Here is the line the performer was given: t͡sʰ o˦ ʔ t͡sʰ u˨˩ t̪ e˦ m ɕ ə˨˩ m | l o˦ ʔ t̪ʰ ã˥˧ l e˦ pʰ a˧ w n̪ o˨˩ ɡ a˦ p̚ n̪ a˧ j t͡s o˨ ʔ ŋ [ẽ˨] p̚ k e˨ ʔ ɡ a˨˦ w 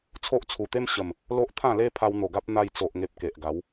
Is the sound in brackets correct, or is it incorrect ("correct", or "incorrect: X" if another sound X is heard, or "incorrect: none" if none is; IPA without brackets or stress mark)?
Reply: incorrect: e˨